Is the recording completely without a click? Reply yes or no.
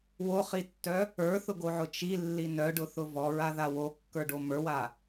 yes